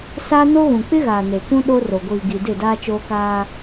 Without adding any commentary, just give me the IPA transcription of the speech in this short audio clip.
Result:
s aː˦ n o˦ ɣ ũ˨ k͡p ɪ˦ ɣ aː˨ n e˨ k ũ˦ ɗ o˦ r o˨ ɡʷ iː˨ ɡ i˨ d ɪ˦˨ d aː˦ t͡ʃ oː˦ k aː˦

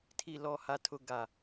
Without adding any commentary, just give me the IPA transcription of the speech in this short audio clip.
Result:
tʰ i˨ l ɔ˨ h a˨ tʰ ʊ˨ ɡ a˨

